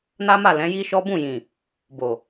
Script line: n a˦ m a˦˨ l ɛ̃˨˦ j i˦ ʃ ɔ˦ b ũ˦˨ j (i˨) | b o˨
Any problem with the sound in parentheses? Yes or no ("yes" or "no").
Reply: yes